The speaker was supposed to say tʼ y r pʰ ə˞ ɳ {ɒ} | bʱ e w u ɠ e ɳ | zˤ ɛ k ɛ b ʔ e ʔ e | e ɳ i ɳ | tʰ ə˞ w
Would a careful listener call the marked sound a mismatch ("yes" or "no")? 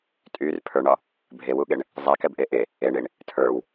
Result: no